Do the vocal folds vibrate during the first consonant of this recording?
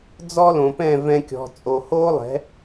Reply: yes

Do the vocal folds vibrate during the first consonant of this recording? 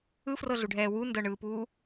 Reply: no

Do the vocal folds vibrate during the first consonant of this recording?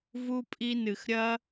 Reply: yes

